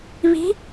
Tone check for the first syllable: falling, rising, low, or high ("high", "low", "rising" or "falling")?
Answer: rising